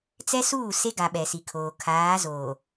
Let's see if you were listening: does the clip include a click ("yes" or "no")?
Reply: no